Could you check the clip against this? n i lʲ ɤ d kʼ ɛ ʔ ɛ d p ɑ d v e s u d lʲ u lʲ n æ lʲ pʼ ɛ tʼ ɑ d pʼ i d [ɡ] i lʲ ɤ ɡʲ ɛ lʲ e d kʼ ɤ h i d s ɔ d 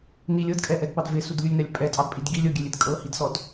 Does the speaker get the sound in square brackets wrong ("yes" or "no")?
no